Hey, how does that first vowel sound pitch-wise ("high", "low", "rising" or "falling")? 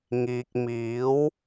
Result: low